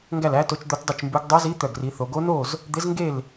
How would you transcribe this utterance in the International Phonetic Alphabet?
ŋɡæ˥˧læ˦˥to˦˥t͡ʃ d̪o˦˥tdˤɛ˥˧t͡ʃmbʉ˦˥ɡ dˤœ˦˥zi˦˥ t̪œ˥˧ɡri˦˥θo˦˥ ɡo˦˥no˥˧z | d̪ɪ˦˥zŋɡe˥˧l

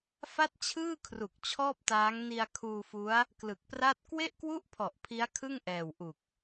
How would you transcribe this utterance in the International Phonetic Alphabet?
fa˥˩t̚t͡ɕʰɯː˥˩kʰru˨˩k̚ t͡ɕʰɔː˥˩p̚taː˦˥ŋ ni˧a̯kʰuː˧fu˦˥a̯ | klɯ˨˩k̚pra˥˩t̚ kwe˥˩ʔkwu˥˩ʔpʰɔ˨˩ʔ pʰi˦˥a̯kʰɯ˥˩ŋʔɛː˨˩w ʔu˨˩k̚

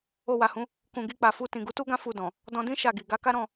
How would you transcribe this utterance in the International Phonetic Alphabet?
o˧wa˨hũ˨˦ | kũ˨ɡi˧ k͡pa˨fu˧ tĩ˨ɡu˨˦tu˦ɡã˦ fu˧dɔ̃˨ | dɔ̃˧dĩ˦ ʃa˦˨ɡi˨ ɡa˨˦ka˦ɾɔ̃˦˨

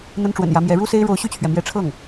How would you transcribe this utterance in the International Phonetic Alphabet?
n̪ə˥nʈ͡ʂwə̰˨˩njä˧˥mjɛ˧˥ ɻu˥se˥ɪ̯ ɻo˧˥ʊ̯ɕy˥˩t͡ɕʰɥɛ˩ mjɛ˧˥ʈ͡ʂʰɤ˥˩ŋ

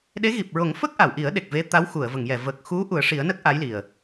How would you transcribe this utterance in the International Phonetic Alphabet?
ɗe˧˥ɣi˨˩p̚ ɹo˨˩˦ŋfə˦˥k̚ ʔa˨˩˨wʔi˨˩˦ə̯ɗe˨˩k̚ ve˧˥ t̪a˧˥wxu˨˩˨ə̯və˨˩˨ŋjɛ˨˩˨ və˨˩k̚xu˧˥ ʔu˨˩˦ə̯ʂi˨˩˦ə̯nə˦˥k̚ ʔa˧˥jli˨˩ə̯

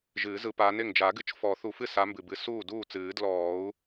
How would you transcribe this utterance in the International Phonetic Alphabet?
ʒɨː˨˩˦zɯ˨˦paː˨˦nɪ˥˩ŋ d͡ʒa˨˩˦ɡɨ˨˦t͡ʃ fɔ˨˩˦θu˨˩˦fɨ˥˩ sa˨˦mbɨ˩bɨ˨˩˦s uː˥˩ duː˥˩t͡sɨː˨˩˦ dlɔː˨˩˦u̯

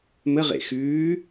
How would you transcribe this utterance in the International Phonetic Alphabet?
məʁḛ xʉː

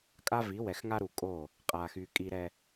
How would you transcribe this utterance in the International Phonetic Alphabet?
kʼa˦vi˨˦ wɛ˨xŋa˦ɾu˨kʼo˦˨ | qʼa˨xy˨ kʼi˨ɾɛ˨

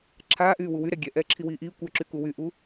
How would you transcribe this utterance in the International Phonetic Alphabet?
ǁʰaːʔyː wuwyɾɛ ɡʲɛ ʔɛːǁʰiwiːʔiː kʷə˞ǁyku wyʔu

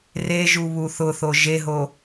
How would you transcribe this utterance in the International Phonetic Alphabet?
reʒu βuθʊθo ʒeɦo

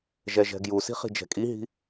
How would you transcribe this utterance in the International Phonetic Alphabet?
ʒɛʒɛ̤ɡjusi̤ χi̤d͡ʒɛ̤kʼiɦi̤

